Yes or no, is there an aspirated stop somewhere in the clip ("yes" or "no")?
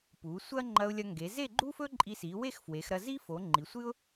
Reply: no